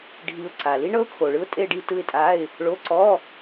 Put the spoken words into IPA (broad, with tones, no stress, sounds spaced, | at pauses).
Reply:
ɖʱ i˧ ʊ̯ ǀ a˨˩ l i˥ ɳ ɤ˥ ʊ̯ kʰ o˨˩ ɭ ɯ˥ ʊ̯ tʼ e˥˧ ɖ i˥˧ t ɯ˥˧ ɪ̯ tʼ a˧˥˧ ɪ̯ | ɭ o˧˥˧ ǀ ɔ˧˥˧